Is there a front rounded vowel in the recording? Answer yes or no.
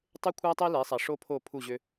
yes